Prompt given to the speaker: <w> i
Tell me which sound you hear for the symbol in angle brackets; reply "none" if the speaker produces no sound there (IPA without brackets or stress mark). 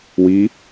w